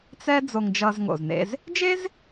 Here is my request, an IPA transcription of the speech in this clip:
t͡sɛ˥ d͡zo˧ŋd͡ʒʌ˧zŋo̰˩znḛ˧z | d͡ʒe˥z

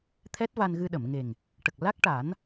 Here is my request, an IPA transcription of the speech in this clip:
t̪ʰɛ˦˥t̚va˧nɣɨ˧ ɗə˨˩˨mŋe˨˩ŋ | ʈə˨˩k̚ la˦˥k̚ʈa˨˩˦n

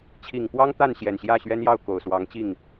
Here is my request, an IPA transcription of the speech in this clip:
t͡ɕʰi˨˩ŋpwɑ˦ŋ t̪a˥˨nɕjɛ˨˩n ɕjä˥˨ɕɥɛ˦njɑ˥˨ʊ̯ ko˨˩ʊ̯swɑ˨˦ŋt͡ɕi˥˨ŋ

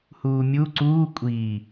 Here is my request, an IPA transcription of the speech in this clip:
huːmʲu ǀuː kʷʼiː

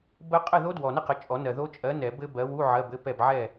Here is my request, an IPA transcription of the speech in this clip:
bə˦˥ qʼə˥˨ðo˦˥dwɔ˨nɘ˥˨ qə˨˥t͡ʃʼɔ˨˩˦nɜ˨ ðo˦˥ t͡ʃʼɜ˨˥nɛ˨˩˦ bɘ˦˥bɜ˨˥ wu˧˥˧ ʕɜ˧˥˧bɘ˧˥˧pɛ˥˨b ʕɛ˥˨

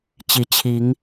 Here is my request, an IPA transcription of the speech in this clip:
t͡ɕi˨˦t͡ɕʰi˨˦ŋ

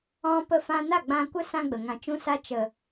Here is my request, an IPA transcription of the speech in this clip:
ɔ̃˧ pə˧fã˧ na˦˨ɡ͡bã˧kʷə˦ sã˦ɡ͡bə˨ ŋã˧t͡ʃũ˦sa˦ t͡ʃə˨

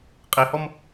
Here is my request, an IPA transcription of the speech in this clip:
qʼehɔm

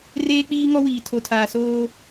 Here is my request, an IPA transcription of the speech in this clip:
reː˦k͡piː˦ŋɔ˦wiː˨ tʰo˨tʰaː˨soː˦

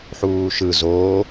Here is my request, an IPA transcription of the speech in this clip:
ħuːʃɯ zoː

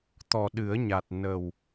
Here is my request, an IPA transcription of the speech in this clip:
t̪ɔ˨˩ɗɨ˨˩˦ə̯ɲa˨˩t̚ nə˨˩w

